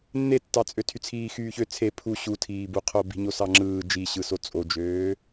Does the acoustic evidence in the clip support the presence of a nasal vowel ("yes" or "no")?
no